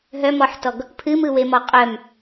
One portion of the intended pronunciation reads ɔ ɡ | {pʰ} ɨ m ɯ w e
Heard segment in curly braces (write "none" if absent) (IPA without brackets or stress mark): pʰ